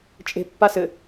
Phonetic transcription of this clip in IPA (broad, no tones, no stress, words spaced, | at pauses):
t͡ʃʼe̤ pːasɘ